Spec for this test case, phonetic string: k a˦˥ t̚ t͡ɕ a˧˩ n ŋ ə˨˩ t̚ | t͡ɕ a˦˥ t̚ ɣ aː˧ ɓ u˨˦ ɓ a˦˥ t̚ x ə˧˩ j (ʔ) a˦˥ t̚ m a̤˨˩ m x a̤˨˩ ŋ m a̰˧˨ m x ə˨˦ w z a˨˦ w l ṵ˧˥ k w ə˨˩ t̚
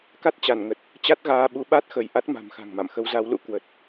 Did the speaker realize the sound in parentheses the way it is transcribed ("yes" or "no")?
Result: yes